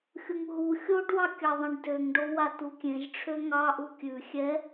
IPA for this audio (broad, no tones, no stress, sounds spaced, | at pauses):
xʲ u ŋ ɦ u xʲ o ɖ w ɑ kʲ ɑ ðˤ ẽ ɖ d ø ŋ ɖ o w a t u kʲ ẽ ʒ ʈ͡ʂʰ ø ŋ ɑ ʔ u kʲ ʉ xʲ ɛ